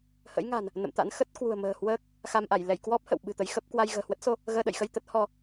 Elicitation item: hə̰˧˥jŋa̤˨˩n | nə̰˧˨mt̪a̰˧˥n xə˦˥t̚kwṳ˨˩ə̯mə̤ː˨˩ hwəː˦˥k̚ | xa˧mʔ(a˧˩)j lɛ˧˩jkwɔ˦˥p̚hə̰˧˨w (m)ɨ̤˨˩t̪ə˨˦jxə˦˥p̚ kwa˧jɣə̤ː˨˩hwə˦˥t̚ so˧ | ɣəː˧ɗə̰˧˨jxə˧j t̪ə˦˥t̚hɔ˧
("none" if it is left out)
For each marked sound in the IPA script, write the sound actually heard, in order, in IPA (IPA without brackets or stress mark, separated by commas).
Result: a˧˩, ɓ